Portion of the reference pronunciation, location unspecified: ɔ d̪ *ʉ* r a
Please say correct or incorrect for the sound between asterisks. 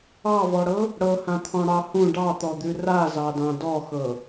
correct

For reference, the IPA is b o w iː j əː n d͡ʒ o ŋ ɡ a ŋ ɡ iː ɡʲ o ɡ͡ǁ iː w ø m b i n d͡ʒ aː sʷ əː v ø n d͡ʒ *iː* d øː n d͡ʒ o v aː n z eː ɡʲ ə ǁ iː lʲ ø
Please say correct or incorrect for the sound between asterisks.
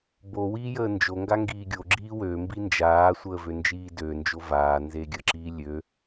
correct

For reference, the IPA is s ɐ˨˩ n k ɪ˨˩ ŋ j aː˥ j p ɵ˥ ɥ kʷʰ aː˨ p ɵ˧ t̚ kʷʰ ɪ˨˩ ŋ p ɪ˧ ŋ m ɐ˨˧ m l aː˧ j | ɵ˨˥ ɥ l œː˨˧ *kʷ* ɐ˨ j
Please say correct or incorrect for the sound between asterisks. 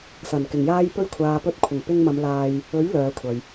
incorrect: kʷʰ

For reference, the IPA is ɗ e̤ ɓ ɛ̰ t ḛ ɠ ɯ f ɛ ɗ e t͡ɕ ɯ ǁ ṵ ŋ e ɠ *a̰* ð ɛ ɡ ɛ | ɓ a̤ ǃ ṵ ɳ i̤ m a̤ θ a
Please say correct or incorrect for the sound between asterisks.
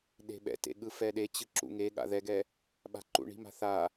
correct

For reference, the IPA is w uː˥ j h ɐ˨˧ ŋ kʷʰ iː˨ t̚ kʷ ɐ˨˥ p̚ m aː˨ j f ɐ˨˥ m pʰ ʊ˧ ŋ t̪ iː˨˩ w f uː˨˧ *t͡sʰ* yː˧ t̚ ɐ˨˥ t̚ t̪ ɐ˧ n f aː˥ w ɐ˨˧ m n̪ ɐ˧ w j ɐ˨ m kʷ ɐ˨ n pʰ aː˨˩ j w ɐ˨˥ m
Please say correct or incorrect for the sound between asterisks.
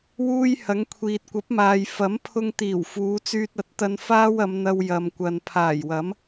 incorrect: t͡s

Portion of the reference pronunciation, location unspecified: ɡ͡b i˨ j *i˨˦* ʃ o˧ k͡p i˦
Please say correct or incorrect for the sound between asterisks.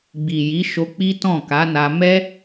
correct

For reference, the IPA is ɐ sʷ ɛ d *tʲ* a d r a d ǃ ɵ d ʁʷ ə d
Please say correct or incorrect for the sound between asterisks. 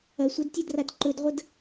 correct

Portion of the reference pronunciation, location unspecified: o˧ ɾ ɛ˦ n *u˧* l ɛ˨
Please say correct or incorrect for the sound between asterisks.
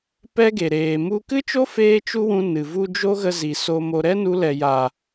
correct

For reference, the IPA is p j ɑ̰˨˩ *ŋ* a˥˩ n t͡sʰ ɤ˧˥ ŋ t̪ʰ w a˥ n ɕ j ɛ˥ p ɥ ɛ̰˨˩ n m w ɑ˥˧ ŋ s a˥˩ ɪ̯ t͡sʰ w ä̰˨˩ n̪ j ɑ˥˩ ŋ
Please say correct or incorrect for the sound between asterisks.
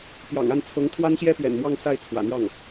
correct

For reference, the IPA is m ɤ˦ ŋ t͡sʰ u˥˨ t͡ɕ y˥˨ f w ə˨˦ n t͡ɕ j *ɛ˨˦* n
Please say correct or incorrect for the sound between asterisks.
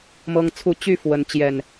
incorrect: ɛ˨˩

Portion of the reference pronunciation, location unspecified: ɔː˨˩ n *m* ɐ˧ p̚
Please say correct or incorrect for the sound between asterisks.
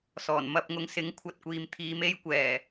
correct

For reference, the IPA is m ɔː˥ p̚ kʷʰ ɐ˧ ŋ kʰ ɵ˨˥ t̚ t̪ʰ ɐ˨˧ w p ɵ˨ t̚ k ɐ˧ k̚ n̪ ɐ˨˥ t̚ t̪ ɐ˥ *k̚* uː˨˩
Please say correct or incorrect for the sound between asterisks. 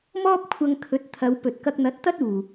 incorrect: t̚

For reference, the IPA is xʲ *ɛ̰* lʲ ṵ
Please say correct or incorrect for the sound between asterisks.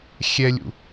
incorrect: ɛ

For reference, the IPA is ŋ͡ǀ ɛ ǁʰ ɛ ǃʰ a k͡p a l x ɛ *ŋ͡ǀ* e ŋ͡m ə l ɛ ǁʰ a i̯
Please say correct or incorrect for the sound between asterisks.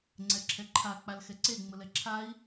incorrect: ǀ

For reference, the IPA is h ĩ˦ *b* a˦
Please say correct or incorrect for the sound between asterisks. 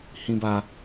correct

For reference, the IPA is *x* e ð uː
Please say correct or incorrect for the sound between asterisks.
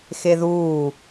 correct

